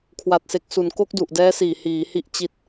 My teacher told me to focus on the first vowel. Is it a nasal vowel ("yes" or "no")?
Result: no